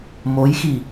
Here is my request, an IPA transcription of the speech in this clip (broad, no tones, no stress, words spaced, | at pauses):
mojxi